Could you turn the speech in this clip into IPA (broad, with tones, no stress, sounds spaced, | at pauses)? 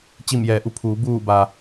t͡ɕ i˧˩ m j ɛː˩˧ ʔ u˩˧ pʰ uː˩˧ b uː˧˩ b a˩